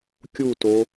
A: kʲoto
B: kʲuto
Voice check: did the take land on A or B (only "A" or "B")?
B